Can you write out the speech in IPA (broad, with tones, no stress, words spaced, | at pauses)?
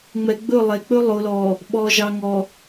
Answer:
ŋ͡mɛ˨ɡ͡bɵ˦˨lˠɛ˨ k͡pɵ˦ lˠo˨lɔ˨ | ɓɔ˨ʒɑ˨ŋɔ˨